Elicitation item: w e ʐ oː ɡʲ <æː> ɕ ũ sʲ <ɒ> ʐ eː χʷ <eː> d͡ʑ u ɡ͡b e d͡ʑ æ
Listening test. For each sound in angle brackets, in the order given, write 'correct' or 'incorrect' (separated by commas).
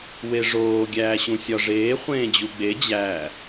correct, correct, incorrect